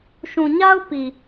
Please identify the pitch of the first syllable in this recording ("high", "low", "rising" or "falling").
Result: low